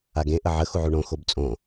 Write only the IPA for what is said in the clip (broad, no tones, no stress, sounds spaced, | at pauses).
a ɡ ẽ ʔ ə ʕ ə x u ʕ u ɳ õ x o b t͡sʼ õ